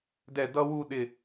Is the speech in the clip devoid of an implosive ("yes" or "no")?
no